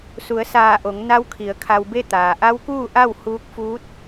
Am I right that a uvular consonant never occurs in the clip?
yes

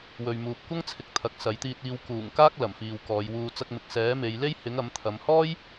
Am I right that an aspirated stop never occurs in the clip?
no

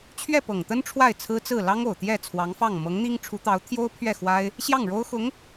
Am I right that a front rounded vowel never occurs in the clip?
yes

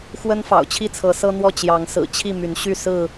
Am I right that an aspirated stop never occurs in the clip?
no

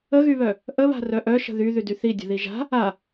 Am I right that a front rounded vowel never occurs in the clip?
no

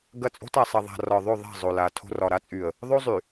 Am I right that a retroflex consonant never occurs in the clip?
yes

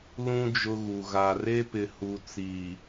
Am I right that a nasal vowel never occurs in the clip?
no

